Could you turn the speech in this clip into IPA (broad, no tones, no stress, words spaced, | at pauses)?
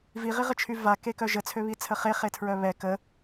viʁiʁət͡ʃʰy vakekœ ʒət͡sʰøβit͡sʰə χeχetʰɹœ βɛ kə